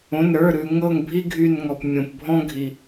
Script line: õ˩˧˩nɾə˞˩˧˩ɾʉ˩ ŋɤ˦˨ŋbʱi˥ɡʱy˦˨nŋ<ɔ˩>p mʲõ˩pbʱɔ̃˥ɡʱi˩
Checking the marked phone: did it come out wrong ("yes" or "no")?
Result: no